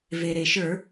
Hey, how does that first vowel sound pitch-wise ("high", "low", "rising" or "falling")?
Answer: low